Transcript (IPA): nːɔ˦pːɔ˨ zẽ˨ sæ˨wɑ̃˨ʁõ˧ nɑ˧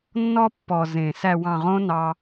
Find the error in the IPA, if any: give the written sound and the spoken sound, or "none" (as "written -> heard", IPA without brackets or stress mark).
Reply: none